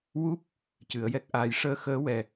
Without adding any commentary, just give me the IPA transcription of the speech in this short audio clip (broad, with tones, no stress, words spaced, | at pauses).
wu˦˥p̚ | cɨ˨˩˦ə̯jɛ˦˥k̚ʔaː˧j ʂəː˧˥xəː˧˥wɛ˨˩